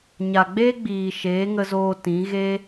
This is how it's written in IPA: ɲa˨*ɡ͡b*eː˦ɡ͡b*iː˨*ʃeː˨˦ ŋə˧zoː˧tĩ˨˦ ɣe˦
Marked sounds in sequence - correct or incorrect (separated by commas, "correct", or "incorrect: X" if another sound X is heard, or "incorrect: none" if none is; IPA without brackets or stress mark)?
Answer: correct, correct